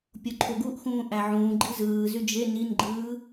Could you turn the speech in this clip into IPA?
pʲ o ǃʰ o ɡ u ʔ x ũː ʔ æ ʕ ũː ɡ͡ǃ i z ɯː z y d͡ʒ e n i n ɡ͡ǃ ɯː

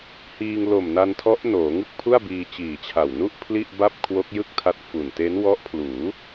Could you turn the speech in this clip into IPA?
h iː˧ ŋ l o˨˩ m n a˧ n tʰ ɔ˦˥ ʔ n oː˩˦ ŋ ɯ˥˩ k̚ pʰ u˥˩ a̯ b iː˧ t͡ɕ iː˨˩ t͡ɕʰ a˨˩ w n u˥˩ ʔ pʰ l i˥˩ ʔ b a˥˩ p̚ kʰ w o˦˥ k̚ j ɯ˥˩ k̚ tʰ a˦˥ t̚ f u˨˩ n t e˦˥ n w ɔ˦˥ ʔ pʰ l uː˩˦

